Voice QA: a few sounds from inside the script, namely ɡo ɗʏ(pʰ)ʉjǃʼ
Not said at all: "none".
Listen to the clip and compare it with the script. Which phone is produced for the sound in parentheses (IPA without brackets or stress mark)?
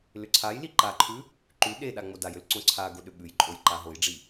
ɓ